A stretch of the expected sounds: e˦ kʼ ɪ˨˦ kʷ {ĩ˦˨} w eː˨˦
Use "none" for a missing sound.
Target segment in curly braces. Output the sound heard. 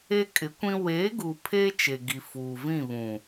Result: ĩ˦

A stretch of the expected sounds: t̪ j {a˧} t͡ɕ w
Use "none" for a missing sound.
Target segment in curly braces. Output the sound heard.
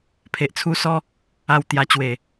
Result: a˧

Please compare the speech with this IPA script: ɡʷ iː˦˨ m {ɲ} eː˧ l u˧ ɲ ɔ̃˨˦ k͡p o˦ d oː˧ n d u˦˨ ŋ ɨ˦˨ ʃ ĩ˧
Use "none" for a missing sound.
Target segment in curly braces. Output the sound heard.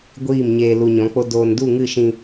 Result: ɲ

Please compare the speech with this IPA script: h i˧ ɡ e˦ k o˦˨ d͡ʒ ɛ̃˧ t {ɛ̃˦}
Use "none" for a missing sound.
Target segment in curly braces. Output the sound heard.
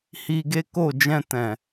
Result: ɛ̃˨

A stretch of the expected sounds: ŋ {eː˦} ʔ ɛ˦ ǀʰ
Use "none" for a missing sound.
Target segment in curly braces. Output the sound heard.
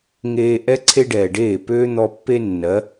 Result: eː˧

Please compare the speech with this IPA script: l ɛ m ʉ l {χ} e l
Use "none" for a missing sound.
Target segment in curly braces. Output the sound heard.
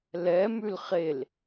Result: χ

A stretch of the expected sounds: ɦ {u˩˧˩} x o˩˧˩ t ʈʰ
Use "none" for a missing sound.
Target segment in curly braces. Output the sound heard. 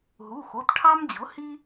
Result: u˩˧˩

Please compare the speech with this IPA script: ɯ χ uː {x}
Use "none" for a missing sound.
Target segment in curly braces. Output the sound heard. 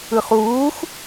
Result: x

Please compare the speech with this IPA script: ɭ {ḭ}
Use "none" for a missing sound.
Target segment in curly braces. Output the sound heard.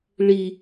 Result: i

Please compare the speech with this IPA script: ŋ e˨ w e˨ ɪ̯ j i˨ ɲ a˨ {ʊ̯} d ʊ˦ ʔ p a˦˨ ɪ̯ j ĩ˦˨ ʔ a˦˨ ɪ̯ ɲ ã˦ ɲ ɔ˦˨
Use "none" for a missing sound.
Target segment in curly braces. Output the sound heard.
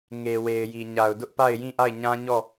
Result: ʊ̯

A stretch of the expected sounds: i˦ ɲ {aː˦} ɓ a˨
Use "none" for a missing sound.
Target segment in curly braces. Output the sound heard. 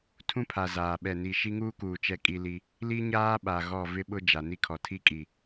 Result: aː˦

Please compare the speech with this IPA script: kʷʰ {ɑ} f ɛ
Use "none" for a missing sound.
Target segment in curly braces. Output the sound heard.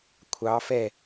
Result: ɑ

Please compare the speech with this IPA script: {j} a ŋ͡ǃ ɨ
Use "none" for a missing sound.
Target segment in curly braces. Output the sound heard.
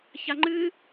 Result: ç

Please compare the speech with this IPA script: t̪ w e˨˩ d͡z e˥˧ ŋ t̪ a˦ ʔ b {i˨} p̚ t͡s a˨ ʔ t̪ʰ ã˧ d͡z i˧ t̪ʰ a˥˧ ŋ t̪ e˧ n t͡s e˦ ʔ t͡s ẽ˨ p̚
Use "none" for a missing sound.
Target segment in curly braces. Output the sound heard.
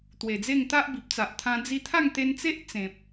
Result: i˨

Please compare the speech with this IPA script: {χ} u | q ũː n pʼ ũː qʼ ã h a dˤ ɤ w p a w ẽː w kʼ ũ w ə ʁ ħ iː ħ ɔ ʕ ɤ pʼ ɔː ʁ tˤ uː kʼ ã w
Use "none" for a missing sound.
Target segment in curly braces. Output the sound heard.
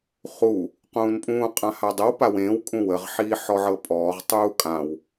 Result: χ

